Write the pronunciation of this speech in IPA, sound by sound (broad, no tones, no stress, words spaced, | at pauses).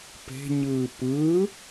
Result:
pe̤ɲɯː pɯ